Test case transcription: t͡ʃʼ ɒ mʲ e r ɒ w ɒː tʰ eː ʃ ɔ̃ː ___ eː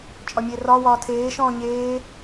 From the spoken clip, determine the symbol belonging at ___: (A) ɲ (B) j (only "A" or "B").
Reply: A